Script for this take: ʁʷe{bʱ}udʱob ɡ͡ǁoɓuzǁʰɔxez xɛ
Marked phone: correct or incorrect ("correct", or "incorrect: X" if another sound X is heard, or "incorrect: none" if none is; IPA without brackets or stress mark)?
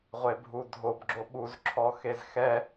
correct